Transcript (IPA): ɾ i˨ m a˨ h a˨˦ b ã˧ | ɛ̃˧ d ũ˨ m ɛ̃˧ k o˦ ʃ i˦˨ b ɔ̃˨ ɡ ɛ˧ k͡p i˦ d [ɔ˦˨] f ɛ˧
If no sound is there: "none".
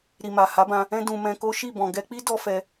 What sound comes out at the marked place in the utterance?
ɔ˦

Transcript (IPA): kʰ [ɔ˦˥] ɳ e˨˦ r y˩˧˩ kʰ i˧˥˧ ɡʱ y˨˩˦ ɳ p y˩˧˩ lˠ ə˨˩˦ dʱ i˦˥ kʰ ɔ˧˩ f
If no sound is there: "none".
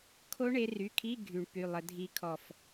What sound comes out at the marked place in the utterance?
o˦˥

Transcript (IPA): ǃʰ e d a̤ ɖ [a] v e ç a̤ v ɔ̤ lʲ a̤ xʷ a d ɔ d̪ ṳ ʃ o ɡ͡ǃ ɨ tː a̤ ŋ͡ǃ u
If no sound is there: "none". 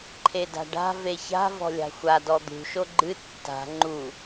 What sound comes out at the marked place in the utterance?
a̤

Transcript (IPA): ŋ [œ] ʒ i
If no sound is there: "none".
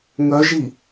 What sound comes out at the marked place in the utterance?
œ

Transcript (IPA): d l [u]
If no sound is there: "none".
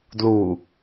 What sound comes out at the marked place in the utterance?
u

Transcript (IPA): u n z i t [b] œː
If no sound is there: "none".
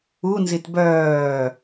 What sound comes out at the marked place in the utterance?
b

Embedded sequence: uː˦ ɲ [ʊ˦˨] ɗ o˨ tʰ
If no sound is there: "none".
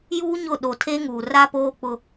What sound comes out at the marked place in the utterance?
ʊ˦˨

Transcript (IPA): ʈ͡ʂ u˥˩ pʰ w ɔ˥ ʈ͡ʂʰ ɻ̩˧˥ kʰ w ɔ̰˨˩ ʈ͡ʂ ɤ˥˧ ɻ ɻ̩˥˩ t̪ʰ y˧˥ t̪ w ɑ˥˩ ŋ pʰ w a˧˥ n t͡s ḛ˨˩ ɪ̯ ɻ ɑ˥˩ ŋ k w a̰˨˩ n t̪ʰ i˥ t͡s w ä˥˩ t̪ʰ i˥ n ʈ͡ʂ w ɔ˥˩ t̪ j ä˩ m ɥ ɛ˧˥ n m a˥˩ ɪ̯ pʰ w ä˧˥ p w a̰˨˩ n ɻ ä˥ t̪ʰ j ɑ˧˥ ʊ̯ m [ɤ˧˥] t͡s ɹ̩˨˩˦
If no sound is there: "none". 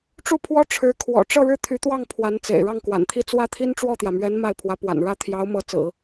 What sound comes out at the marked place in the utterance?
ɤ˧˥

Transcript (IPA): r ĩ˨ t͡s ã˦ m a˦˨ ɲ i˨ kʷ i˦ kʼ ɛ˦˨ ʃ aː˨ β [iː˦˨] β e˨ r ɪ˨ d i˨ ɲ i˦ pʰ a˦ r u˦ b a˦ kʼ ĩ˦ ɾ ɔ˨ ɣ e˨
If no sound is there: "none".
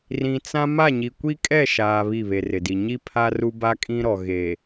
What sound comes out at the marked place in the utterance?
i˦˨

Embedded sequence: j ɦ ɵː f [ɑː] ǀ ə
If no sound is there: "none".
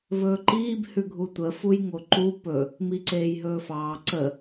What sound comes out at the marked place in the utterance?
ɑː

